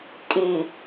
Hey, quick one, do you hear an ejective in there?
yes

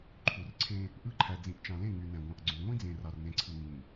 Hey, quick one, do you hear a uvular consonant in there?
no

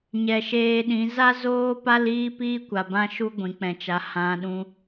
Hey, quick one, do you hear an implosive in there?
yes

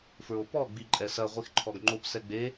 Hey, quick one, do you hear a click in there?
yes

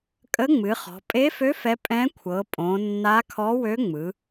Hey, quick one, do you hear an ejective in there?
yes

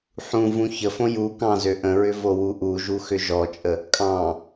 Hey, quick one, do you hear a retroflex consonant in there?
no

